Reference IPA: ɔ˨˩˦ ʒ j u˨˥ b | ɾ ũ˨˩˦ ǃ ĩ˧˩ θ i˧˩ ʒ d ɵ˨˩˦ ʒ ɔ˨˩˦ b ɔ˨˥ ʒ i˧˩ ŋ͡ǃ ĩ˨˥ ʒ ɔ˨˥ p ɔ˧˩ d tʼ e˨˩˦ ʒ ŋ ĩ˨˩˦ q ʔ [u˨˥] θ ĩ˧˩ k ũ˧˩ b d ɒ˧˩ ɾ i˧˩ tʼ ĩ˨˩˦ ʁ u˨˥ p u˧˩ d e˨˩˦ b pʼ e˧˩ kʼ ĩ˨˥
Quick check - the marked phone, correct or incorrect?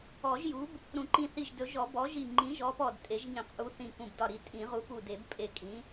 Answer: correct